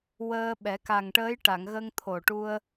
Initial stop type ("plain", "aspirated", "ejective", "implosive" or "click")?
implosive